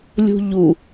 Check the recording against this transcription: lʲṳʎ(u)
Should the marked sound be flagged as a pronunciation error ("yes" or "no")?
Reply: no